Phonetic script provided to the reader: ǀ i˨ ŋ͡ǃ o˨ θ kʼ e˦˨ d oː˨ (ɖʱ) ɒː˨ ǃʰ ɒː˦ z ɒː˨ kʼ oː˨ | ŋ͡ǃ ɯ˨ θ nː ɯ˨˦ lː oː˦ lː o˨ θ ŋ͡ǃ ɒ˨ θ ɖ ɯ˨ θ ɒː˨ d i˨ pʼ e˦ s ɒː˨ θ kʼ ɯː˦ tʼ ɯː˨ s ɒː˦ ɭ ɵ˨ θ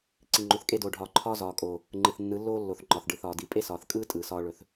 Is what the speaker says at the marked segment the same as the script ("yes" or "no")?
yes